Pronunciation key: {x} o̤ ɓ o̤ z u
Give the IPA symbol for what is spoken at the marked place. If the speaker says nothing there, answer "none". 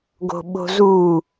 ɡ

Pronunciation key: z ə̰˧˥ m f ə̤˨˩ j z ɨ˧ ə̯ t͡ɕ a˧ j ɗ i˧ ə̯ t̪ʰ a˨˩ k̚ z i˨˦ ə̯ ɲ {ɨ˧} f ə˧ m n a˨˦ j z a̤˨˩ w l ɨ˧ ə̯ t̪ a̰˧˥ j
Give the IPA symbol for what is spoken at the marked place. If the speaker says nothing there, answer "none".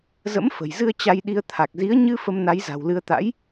ɨ˧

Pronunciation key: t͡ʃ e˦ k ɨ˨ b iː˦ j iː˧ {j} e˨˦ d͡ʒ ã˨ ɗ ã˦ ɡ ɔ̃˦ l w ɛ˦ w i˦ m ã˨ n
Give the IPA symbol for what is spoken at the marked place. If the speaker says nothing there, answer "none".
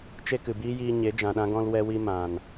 ɲ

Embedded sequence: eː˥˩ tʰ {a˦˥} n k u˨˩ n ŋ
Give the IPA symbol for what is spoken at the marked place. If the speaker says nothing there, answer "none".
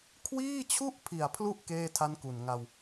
a˦˥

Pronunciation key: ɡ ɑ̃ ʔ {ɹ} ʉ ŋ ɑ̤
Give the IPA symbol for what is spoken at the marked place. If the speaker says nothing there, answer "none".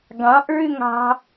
ɹ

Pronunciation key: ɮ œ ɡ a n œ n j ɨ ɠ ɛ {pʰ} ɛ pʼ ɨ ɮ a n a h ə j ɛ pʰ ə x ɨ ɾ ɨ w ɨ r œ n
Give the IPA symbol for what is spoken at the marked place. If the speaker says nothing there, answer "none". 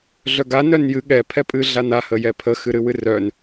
pʰ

